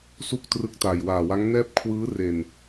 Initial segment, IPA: s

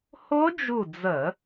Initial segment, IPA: h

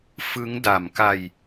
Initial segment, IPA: f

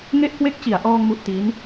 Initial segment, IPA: ŋ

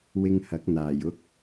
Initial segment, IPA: w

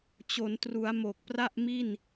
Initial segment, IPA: t͡ɕ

